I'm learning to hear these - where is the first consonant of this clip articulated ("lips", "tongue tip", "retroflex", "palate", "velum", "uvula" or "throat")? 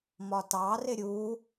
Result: lips